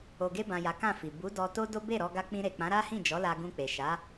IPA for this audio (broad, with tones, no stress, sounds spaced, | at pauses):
o˨ ɡ e˧ b ã˨ j a˨˦ k ã˦˨ f i˨ b u˨˦ d ɔ˧ t o˦ d o˦ b e˦˨ ɾ ɔ˧ ɡ a˧ k͡p ĩ˧ ɾ e˨ k͡p ã˨˦ ɾ a˦ h ĩ˦˨ d͡ʒ ɔ˨˦ l a˧ ɡ ũ˧ k͡p e˨ ʃ a˨˦